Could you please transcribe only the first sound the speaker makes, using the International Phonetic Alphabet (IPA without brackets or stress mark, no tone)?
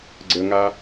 ɡ͡ǀ